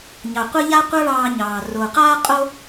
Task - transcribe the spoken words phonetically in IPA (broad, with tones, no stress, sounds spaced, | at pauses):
ɲ ɑ˩ qʷ ə˥ ʎ a˥ qʷ a˥ ɭ ɑː˧ ɲ ɑː˩ r o˩ q aː˥ qʼ o˥